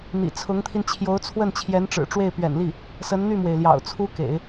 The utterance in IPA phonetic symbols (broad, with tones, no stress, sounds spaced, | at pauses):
n̪ ḭ˨˩ t͡sʰ ʊ˧˥ ŋ t̪ʰ i˧ n t͡ɕʰ j o˧˥ ʊ̯ t͡sʰ w ə˥˩ n t͡ɕʰ j ɛ˧˥ n ʈ͡ʂ ɻ̩˨˩ ʈ͡ʂ w e˥˩ ɪ̯ p ɥ ɛ̰˨˩ n l i˥˩ | s ə˧˥ n n̪ y˥˩ m w e˩ ɪ̯ l j ɑ̰˨˩ ʊ̯ t͡sʰ u˥ k ḛ˨˩˦ ɪ̯